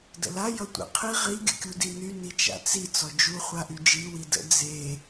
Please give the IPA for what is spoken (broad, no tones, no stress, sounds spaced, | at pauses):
d ə̰ l a j ʌ tʷ ə̰ qʰ i ʁ i ɡʲ ə̰ kʲ u d i n y n i t͡ʃ a̰ t͡s i t͡s ɔ d͡ʒ u χʷ a ʔ y d͡ʒ i w i d ə̰ d͡z e